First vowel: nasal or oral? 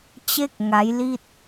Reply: oral